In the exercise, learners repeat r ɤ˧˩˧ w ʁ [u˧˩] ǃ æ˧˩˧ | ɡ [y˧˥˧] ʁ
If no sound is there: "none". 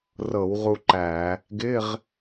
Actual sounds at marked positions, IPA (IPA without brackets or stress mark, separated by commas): u˧, ɪ˧˥˧